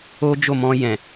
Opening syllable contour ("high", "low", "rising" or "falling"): high